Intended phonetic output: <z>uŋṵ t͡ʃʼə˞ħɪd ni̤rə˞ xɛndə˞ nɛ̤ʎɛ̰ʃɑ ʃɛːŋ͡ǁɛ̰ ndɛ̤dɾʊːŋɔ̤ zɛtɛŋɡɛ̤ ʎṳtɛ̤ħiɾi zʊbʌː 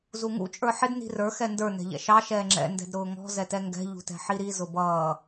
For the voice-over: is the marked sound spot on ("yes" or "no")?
yes